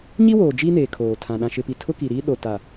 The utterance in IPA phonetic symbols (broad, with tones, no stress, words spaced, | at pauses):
ɲi˦woː˨ d͡ʒiː˦neː˨ kʰoː˨tʰã˨ ɗã˨ʃɪ˨pi˨ tʰʊ˦ki˨ɾiː˦ ɗo˨ta˨